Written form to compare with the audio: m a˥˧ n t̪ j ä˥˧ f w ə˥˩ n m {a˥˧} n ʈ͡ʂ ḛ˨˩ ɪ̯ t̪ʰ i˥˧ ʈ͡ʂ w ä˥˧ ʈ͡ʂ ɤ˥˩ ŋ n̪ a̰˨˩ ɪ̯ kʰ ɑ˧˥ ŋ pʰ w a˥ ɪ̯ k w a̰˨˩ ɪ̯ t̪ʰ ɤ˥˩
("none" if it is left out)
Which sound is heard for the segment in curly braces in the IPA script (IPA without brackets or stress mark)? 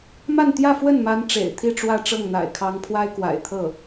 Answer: a˧˥